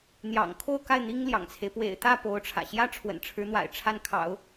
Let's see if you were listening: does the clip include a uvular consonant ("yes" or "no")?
no